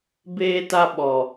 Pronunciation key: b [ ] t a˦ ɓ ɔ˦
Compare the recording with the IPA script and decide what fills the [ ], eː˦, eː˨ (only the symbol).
eː˦